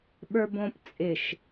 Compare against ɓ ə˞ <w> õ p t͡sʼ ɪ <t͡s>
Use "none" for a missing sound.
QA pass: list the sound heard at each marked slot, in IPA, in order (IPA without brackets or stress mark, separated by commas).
b, ʃ